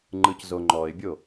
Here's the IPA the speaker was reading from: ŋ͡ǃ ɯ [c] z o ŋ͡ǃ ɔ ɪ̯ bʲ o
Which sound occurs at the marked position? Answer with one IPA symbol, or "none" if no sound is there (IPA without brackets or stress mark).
c